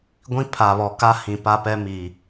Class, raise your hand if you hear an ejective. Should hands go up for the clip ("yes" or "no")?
no